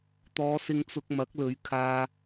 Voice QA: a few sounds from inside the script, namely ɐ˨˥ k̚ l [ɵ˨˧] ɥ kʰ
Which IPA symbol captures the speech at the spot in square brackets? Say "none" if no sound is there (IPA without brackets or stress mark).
ɵ˨˧